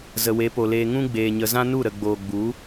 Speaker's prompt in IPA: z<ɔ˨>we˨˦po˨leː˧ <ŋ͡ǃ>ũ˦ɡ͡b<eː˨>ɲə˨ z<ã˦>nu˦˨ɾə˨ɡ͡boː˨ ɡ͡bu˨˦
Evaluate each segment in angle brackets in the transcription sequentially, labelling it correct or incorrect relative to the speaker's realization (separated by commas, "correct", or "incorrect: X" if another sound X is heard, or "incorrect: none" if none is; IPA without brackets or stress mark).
incorrect: ə˨, incorrect: ŋ, correct, correct